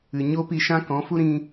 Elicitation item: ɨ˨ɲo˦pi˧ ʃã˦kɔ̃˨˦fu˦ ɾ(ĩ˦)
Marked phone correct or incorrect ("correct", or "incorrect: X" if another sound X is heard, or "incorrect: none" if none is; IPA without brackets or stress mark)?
correct